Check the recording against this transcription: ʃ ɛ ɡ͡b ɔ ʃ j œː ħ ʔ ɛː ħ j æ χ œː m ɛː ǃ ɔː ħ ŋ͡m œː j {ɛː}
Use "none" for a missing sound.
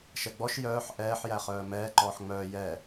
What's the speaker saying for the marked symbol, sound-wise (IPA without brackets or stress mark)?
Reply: ɛː